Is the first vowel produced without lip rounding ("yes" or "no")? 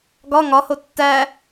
no